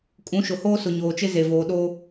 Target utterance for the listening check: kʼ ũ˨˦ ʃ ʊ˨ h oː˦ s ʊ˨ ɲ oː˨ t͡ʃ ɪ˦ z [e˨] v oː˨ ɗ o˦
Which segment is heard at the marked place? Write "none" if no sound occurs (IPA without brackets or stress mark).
e˨